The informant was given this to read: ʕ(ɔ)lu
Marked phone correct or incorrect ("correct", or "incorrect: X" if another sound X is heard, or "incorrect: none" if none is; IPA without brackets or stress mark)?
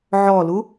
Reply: correct